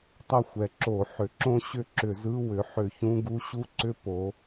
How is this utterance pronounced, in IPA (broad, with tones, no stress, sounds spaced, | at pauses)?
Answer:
tˤ ɐ˥˨ xʷ ɛ˩˥ ǁ o˧˩˧ ħ ʏ˩˥ ǁ õ˦˥ ɕ ʏ˥˨ ǁ ʏ˧˩˧ z ɯ˧˥˧ w ʏ˩˥ ħ ʏ˧˩˧ ç ũ˧˥˧ ɡ u˦˥ ɕ u˥˨ ǀ ʏ˦˥ p o˩˥